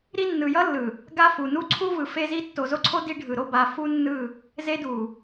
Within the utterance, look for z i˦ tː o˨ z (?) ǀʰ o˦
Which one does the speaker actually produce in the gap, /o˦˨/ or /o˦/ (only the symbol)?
o˦